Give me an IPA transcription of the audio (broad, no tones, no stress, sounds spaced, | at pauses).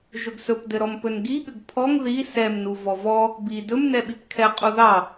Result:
ʒ ɵ ɡ s ɵ p d ɘ ɾ ɔ m p ɵ n ɡ i ɠ ɘ ɡ pʰ ɔ ŋ ð i s ɛ m n u v ɔ v ɔ | b i d ɵ m n ɛ ɓ i p kʰ ɛ qʼ u ð ɑ